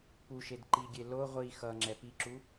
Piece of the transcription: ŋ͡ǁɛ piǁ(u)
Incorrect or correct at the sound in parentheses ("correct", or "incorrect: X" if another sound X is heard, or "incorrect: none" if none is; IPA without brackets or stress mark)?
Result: correct